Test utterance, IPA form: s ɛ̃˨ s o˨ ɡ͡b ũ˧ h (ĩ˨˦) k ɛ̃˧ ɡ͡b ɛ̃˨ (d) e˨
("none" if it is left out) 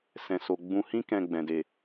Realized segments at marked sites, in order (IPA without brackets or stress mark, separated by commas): ĩ˦, d